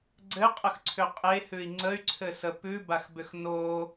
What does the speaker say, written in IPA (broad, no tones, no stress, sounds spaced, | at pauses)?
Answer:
ɡ͡ǀ ɘ qʼ ə x ǀʰ ʏ qʼ e h ʉ i̯ ŋ͡ǀ ə y̯ ǀʰ ɘ s ə p ʉ b a x b ʏ x n o